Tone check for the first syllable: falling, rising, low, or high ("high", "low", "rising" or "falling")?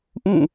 falling